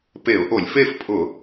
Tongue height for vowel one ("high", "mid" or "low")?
mid